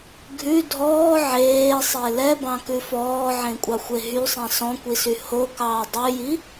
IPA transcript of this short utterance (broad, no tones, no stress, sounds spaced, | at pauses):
ɡʱ ʉ dʱ ɔː ʕ eː sˤ e l ɛ b ɑ̃ k ʉ f ɔː ʕ ẽ kʷʼ ɑ xʷ e ɦ y sˤ ɛ̃ s ɔ̃ kʷ i s y h o k ɑː dˤ ʉ j i